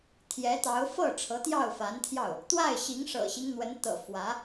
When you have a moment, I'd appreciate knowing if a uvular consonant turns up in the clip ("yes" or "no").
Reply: no